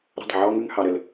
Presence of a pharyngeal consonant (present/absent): present